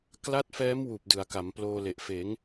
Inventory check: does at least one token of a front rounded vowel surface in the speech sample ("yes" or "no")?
no